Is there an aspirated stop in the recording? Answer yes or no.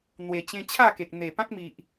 yes